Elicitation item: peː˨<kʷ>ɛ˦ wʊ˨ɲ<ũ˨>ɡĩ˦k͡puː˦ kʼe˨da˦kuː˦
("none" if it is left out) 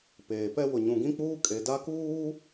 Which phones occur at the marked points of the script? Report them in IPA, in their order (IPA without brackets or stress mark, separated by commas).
p, ũ˨